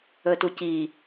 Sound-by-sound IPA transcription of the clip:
əːtuciː

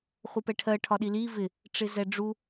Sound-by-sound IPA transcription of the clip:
χʷəpɛʈʰɜ ʈʰɒɗili vɪ | ʈ͡ʂɪzɛɖ͡ʐu

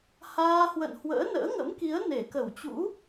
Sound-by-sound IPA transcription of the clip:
haː˧ hwə̰˧˨nhwə̰ː˧˥ nə̰ː˧˥ŋə̰˧˥mki˨˦ə̯ ne˧˩kə˧˩wt͡ɕṵ˧˥

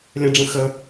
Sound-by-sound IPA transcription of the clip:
lʲə̃ɖ͡ʐə̃ xə

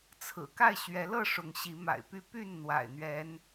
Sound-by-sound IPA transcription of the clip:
t͡sʰɹ̩˨˩ ka˥˨ɪ̯ɕɥɛ˨˦lɤ˥˨ ʂʊ˨˦ŋɕi˨˦ma̰˨˩ɪ̯py˥˨ py˥˨n n̪wa̰˨˩ɪ̯n̪ɥɛ˨˦n

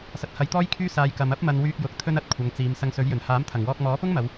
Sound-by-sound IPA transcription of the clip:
sɐ˨˥t̚hɐ˨˧jt̪ɔː˥jkʰyː˥ saː˧jkɐ˨˧m ɐ˥p̚mɐ˧n wyː˧k̚jʊ˨k̚ t̪ʰɵ˥nɐ˧t̚kʷʰɐ˨˧ŋt͡siː˨˧m sɐ˧ŋsɵ˨˥ɥjɵ˨˩n haː˨˥mt̪ʰɐ˨˩ŋwɔː˧k̚ mɔː˨˥pʊ˥ŋmɐ˨˧w

